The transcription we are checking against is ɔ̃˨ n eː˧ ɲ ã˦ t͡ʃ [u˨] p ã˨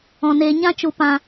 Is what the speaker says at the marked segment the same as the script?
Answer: yes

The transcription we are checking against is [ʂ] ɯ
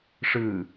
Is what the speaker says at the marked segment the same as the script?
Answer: yes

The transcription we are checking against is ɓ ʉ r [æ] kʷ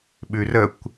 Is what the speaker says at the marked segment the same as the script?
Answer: no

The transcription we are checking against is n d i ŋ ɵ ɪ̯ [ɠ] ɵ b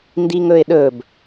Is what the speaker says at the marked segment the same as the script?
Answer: no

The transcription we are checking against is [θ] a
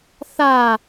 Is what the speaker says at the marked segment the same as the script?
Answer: yes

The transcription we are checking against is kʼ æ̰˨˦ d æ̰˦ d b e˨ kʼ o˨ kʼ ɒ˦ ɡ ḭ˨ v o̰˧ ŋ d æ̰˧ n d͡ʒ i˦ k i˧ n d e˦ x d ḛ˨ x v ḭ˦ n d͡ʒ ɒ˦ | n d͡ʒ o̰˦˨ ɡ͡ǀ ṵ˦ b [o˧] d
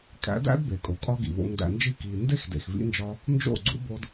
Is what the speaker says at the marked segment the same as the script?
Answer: yes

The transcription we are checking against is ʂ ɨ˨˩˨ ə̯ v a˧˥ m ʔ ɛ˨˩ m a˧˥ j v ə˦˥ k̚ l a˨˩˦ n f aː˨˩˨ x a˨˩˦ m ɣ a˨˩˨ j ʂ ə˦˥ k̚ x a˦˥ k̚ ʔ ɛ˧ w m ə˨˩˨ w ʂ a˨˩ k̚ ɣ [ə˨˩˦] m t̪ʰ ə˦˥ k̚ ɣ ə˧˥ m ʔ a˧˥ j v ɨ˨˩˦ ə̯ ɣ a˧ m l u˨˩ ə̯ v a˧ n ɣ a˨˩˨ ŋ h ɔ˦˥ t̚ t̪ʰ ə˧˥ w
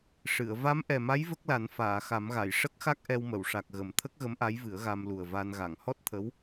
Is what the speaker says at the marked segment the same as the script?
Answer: yes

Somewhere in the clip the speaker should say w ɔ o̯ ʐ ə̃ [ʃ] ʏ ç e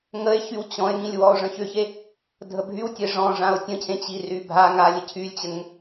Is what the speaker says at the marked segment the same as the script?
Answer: no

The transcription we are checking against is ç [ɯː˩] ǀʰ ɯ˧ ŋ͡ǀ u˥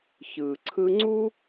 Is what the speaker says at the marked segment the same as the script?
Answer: yes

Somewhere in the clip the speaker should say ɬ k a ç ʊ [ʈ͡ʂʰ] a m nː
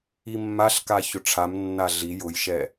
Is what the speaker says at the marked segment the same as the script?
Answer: yes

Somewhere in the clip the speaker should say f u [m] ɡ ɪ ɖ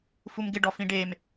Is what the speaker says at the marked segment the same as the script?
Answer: yes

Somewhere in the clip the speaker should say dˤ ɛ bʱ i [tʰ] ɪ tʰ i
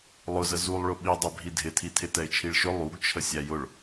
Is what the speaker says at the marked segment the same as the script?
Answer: no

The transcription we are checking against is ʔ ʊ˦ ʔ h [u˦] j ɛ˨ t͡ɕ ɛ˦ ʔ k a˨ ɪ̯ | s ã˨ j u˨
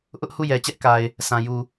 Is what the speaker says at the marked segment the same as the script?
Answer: no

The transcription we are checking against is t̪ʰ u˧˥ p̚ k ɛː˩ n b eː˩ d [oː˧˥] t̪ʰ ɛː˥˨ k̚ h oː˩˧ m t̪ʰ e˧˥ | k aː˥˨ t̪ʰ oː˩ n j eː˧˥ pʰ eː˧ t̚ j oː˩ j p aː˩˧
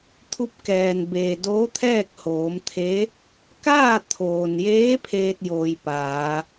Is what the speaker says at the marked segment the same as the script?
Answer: yes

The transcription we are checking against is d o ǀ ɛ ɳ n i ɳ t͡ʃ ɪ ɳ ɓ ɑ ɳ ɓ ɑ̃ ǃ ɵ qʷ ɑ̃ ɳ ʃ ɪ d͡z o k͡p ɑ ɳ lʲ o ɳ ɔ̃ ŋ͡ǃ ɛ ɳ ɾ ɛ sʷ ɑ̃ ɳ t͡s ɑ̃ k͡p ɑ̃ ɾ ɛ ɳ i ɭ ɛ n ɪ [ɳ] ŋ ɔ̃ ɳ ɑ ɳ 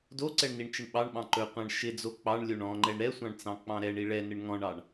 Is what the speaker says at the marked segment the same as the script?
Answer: yes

